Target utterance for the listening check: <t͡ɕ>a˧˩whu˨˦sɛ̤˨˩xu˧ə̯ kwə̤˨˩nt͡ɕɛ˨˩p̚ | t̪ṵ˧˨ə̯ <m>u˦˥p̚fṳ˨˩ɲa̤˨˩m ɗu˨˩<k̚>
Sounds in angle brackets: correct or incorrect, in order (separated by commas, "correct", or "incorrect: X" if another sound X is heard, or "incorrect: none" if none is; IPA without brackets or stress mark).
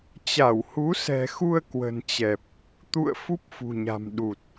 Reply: correct, incorrect: f, incorrect: t̚